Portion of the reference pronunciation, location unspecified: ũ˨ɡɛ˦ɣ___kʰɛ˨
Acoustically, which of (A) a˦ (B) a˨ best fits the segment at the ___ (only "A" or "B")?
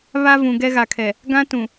B